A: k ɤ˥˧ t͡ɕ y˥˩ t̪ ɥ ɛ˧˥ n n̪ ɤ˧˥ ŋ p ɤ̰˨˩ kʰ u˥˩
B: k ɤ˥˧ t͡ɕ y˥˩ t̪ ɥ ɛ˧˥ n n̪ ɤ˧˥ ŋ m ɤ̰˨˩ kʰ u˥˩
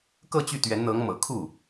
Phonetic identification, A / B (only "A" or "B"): B